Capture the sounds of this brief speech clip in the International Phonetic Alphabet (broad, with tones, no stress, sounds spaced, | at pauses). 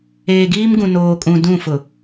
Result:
eː˨ ɡ iː˦ m ɡ ũ˨ n oː˨ kʼ ũ˨ d ũ˦˨ f ʊ˨